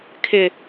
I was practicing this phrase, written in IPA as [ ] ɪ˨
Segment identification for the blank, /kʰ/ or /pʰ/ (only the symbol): kʰ